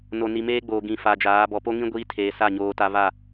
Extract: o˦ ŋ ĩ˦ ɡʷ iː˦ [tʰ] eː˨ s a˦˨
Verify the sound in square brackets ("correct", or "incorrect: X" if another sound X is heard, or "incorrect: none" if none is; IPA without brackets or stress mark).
correct